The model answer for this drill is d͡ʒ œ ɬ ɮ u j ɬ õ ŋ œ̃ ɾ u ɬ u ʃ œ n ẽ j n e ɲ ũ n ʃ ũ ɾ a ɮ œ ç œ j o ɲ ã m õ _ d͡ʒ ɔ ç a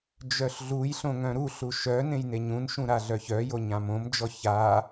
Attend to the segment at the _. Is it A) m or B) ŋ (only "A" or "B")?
A